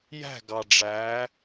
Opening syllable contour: falling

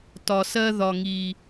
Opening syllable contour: low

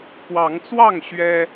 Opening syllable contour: rising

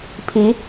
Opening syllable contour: rising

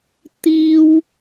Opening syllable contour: high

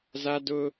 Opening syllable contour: high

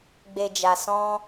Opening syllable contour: low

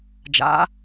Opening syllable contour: rising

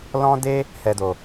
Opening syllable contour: high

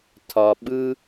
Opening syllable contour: low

